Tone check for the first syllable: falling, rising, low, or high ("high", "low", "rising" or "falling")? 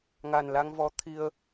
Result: low